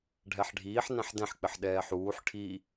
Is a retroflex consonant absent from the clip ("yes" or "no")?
no